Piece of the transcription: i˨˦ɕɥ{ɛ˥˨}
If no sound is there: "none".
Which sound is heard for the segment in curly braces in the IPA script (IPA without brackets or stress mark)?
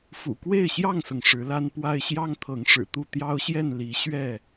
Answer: ɛ˥˨